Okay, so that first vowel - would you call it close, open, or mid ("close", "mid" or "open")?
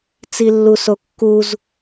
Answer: close